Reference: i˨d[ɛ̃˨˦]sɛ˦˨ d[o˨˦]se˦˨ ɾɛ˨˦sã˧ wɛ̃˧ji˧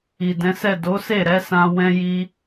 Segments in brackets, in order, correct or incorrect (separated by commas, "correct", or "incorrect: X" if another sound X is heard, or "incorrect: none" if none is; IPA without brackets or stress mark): correct, correct